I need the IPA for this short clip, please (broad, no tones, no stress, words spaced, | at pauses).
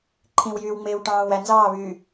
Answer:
ǃʰĩwjyːwŋ͡meːw ʈɑ̃ːwæ nzɑːβyː